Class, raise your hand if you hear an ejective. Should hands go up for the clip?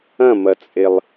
yes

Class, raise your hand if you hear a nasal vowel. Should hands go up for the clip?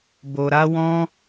yes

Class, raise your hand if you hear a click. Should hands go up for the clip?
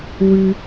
no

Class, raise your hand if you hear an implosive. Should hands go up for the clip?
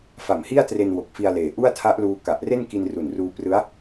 no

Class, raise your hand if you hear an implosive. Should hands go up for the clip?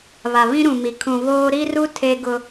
no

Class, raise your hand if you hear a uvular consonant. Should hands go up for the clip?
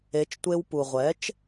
yes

